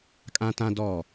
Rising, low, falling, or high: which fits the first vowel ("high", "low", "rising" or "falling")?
high